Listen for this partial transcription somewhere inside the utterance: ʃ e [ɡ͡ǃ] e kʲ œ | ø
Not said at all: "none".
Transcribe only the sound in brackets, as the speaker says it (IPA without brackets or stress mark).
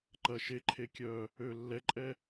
ǃʰ